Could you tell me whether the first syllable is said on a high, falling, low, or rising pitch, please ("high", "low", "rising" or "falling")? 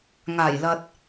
low